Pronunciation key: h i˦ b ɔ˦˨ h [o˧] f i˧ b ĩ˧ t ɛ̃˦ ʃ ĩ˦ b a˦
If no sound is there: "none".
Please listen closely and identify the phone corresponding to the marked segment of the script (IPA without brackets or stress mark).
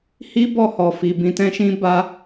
ɔ˧